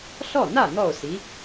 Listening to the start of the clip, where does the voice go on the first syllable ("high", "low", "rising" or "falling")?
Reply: falling